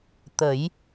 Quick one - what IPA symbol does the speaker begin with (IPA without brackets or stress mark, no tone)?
t̪